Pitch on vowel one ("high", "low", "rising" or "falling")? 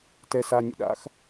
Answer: low